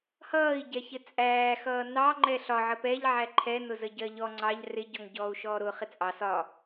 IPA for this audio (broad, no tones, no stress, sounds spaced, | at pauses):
h ʌː i̯ ɟ ɛ ç ɪ t͡sʼ æː x ʌː n ɑ ŋ͡ǃ ɛ ɬ ɒ ʕ ə p ɛ ʎ ʕ æ ǃʰ ɛ n ʊ z ə ɟ ɜ ʎ ɔ ŋ͡ǀ ɑ ʎ r ɪ ɟ ɔ ŋ ɟ ɔː u̯ ʃ ɔː ɾ ʊ χ ɪ t͡sʼ ɑ s ɒ